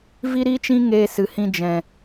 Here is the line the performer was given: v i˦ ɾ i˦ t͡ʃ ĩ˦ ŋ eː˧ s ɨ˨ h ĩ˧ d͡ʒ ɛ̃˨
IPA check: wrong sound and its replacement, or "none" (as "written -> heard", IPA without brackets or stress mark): none